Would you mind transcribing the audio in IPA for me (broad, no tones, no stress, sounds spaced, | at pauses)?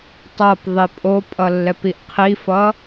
tˤ ʌ p ðˤ i pʼ o pʼ ʌ lː ɛ p i ʔ qʰ i f ʌ